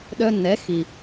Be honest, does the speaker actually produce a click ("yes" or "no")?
no